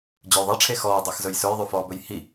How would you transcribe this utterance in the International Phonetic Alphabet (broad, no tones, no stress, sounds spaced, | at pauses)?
d͡ʑ ɵ j ðˤ e ʈ͡ʂʰ e x ɔː dˤ i x z ɵ j s ɵ j ðˤ ʉ f ɔː b ɵ j h i